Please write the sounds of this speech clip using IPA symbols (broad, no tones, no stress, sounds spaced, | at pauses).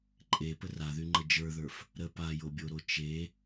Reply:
ǃʼ e p ə r a ð y ŋ͡ǃ ə d͡ʒ ə˞ ð ə˞ f | ɾ ə p a j o bʲ o ɾ o t͡ʃ e